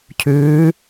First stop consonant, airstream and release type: aspirated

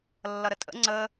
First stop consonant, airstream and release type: ejective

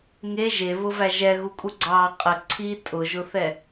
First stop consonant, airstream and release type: ejective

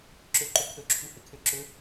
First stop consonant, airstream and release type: click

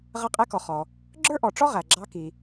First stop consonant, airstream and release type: ejective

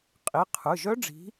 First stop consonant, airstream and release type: ejective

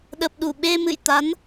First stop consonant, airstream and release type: implosive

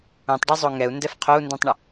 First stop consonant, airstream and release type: plain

